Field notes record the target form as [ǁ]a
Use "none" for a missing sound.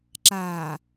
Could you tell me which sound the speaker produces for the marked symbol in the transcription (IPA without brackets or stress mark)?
ǁ